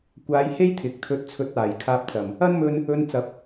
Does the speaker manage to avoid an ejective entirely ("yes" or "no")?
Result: yes